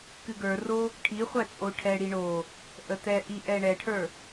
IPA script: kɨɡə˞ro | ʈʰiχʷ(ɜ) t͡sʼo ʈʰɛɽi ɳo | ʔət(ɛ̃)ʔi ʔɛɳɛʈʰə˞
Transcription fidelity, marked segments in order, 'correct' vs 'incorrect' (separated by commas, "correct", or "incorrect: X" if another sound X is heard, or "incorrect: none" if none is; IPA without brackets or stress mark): incorrect: æ, incorrect: ɛ